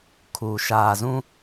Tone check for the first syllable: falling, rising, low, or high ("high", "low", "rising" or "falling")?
low